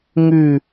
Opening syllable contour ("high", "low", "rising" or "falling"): falling